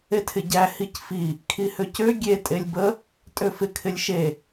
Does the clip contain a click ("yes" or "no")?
no